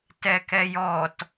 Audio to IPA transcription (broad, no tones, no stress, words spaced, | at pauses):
tɛkɛjɔt